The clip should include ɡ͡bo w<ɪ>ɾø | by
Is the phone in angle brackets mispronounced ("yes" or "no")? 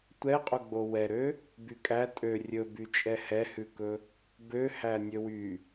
yes